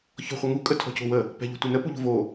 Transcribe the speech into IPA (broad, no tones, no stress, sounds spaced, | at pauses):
ç ɔ̤ χʷ ə ŋ u kʼ ə tʰ ɔ̤ c o̤ w ə | p ɛ̤ ʎ ṳ tʷ e n ə p u ʎ o̤ v o